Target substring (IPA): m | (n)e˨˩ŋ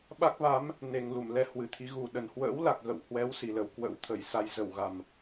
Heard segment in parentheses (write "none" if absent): n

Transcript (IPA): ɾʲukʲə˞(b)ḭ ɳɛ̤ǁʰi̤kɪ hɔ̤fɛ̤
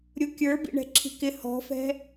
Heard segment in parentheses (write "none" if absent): b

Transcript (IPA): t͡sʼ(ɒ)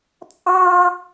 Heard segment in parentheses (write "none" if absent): ɑ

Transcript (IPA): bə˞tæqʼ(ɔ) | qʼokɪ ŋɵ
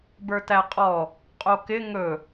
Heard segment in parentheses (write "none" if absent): ɔ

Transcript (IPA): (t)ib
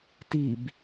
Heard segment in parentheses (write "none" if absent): t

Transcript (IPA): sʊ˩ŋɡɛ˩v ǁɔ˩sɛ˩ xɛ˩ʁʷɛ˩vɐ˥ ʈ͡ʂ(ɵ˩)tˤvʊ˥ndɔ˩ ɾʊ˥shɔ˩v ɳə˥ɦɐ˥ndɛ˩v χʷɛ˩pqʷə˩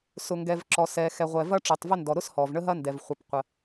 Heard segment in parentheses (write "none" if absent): o˩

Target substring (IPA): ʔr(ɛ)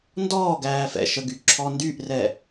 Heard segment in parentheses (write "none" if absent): ɛ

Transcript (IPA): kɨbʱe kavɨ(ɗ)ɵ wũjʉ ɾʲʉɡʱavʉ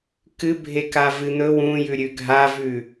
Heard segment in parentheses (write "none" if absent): n̪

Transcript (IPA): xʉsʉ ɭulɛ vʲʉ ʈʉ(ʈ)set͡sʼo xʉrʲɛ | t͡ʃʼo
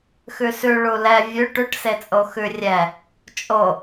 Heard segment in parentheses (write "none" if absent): ʈ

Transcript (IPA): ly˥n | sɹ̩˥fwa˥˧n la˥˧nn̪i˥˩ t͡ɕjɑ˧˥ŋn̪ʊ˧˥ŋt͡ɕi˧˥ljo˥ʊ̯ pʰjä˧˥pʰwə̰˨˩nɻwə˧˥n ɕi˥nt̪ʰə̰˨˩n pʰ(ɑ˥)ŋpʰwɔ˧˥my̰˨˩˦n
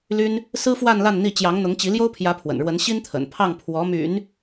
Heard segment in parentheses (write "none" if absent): ɑ˥˩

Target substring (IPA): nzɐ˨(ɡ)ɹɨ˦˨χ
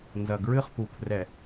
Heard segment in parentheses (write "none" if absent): ɡ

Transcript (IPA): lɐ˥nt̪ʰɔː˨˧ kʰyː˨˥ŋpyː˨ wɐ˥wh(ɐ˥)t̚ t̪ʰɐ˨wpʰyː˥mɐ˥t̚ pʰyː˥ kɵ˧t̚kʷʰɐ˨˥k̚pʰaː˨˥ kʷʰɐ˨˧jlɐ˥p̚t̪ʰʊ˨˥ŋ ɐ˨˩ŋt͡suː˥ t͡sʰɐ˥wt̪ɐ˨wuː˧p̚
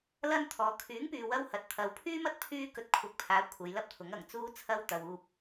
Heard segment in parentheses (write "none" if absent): ɐ˨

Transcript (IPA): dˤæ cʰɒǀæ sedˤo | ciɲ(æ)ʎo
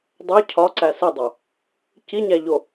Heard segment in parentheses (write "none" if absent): æ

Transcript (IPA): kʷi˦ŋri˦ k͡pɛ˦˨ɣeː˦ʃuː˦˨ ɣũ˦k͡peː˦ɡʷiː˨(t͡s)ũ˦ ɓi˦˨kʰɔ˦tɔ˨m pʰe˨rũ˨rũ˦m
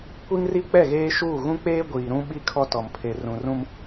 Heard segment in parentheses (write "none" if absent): ɾ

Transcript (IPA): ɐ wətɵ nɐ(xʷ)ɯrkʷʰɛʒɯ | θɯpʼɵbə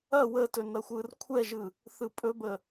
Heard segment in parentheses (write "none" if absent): xʷ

